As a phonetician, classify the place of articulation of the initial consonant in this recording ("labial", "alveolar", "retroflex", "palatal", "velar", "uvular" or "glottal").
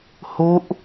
glottal